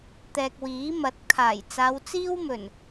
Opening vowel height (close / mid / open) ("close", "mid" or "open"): mid